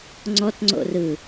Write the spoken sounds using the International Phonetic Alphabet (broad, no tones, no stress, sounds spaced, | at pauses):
ŋ͡ǀ ɔ t ŋ͡ǀ o̰ r ɯ